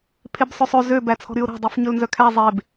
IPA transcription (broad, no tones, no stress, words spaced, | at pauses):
pʰebsˤɵsˤø zø bæt͡sʰɔ̤ɾyʊ̯ɾæ̤ dˤufɲɵlnzœkʰæ zˤeb